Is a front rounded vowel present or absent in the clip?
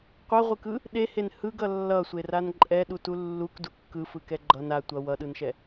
absent